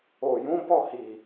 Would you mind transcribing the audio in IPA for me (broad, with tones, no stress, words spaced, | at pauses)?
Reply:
o˨jũ˨˦ bɔ˦˨hi˨